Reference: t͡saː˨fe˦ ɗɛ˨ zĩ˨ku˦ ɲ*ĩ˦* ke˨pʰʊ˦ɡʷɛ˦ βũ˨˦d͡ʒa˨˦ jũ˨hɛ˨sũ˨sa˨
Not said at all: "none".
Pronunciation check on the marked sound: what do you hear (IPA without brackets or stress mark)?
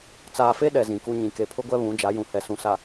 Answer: ĩ˨